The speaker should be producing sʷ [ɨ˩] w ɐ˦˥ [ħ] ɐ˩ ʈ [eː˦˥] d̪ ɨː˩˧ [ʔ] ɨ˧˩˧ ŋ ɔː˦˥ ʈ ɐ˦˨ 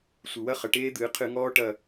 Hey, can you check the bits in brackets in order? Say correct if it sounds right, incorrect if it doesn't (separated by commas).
correct, incorrect, correct, incorrect